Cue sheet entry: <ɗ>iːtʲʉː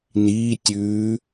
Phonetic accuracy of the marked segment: incorrect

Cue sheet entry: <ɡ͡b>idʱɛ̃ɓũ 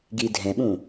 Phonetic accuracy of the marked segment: incorrect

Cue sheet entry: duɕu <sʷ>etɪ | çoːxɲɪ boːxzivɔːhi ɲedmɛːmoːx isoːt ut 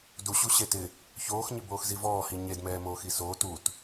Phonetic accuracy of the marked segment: incorrect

